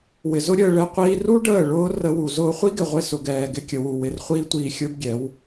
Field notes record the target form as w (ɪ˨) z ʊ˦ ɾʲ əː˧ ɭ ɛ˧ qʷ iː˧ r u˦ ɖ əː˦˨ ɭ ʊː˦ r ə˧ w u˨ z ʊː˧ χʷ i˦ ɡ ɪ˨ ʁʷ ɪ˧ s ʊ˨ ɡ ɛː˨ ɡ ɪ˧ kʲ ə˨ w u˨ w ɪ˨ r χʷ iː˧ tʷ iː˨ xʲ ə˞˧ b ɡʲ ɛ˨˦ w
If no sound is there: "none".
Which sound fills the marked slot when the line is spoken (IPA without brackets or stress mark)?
ɪ˨